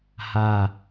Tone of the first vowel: falling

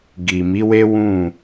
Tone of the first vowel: low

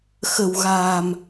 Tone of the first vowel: low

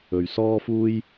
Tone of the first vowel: low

